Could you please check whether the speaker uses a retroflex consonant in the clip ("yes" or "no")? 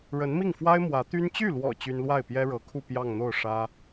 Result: yes